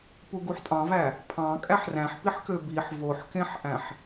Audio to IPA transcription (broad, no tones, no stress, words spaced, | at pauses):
puɡuħtʼɑ̃væ | pʰɑ̃kʼæħ ræ̃ħpiħkø biħ voħkẽħʔæ̃ħ